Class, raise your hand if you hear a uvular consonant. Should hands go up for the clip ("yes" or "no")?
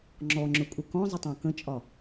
no